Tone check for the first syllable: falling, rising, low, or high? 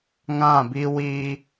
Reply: falling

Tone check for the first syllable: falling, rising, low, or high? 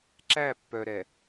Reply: falling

